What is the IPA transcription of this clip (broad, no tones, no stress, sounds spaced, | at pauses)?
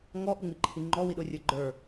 ŋ ɔ ʔ u ŋ͡m i ǃʰ i ŋ͡ǃ ɔ w i ɗ ʊ rʲ ə˞ ɡ͡ǃ ə˞